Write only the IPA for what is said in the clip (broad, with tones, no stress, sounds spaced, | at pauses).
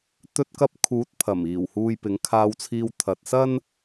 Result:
t̪ ɵ˧ t̚ k ɐ˧ p̚ kʰ uː˨˥ t̚ pʰ ɐ˨˩ m iː˨˩ w h uː˨ j p ɪ˨˥ ŋ kʰ aː˧ w t͡sʰ iː˧ w t̪ʰ ɐ˨ t̚ s ɐ˥ n